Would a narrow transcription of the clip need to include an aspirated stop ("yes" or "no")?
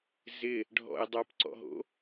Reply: no